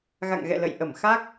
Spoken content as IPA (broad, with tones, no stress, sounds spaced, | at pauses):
ɣ a̰˧˨ ŋ ɣ ɛ̰˧˨ l ə̰˧˨ j ʔ ə˧˩ m x a˦˥ k̚